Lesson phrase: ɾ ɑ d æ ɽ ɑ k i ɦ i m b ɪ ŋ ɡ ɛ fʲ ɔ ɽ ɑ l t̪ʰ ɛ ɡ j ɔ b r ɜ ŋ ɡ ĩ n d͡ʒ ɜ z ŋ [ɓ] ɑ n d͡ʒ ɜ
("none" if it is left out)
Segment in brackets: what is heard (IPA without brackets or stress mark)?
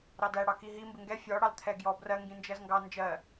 ɡ